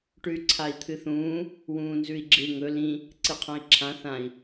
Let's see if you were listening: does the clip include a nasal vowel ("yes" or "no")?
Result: yes